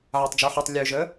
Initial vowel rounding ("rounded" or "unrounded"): unrounded